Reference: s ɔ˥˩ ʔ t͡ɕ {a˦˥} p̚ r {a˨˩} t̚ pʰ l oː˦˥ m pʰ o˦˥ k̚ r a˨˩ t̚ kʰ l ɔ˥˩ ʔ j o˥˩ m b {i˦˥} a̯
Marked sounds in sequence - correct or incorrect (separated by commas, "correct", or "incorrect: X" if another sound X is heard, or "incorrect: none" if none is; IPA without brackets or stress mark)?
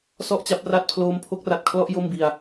correct, incorrect: a˦˥, incorrect: i˧